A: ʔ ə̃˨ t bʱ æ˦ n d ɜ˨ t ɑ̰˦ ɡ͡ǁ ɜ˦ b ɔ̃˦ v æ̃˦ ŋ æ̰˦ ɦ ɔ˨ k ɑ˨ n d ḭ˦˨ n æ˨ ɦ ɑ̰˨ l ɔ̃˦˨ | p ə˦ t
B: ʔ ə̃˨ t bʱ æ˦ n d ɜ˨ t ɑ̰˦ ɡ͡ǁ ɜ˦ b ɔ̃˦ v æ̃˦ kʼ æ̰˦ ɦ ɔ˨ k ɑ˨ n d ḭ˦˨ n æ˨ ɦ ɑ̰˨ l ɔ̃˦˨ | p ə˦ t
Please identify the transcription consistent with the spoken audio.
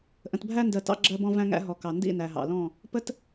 A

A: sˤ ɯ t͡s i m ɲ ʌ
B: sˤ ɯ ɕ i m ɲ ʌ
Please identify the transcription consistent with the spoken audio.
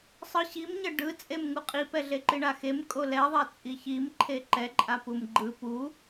B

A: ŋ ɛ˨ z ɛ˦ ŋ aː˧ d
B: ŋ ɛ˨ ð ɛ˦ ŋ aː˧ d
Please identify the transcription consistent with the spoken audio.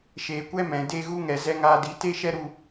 A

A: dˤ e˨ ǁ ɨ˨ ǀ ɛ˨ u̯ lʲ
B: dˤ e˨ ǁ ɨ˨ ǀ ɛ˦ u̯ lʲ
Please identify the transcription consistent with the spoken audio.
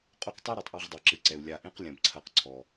A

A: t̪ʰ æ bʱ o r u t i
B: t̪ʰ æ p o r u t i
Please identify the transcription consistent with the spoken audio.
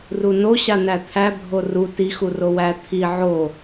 A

